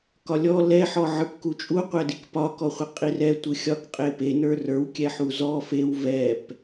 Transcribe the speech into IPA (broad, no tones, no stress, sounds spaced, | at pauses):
k ɒ lʲ ɔ l ɛ ħ ɔ ʕ ə˞ p k u t͡ʃʼ u qʷ ɛ d i k p ɒ k ɔ χʷ i qʼ i r ɛ tʷ ɯ xʲ ɒ k qʼ e p e n ə˞ r ə˞ w kʲ ɛ ħ u z ɔ f e w v ɛ p